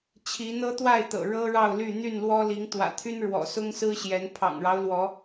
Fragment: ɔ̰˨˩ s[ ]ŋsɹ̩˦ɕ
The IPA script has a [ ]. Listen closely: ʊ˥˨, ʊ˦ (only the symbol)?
ʊ˦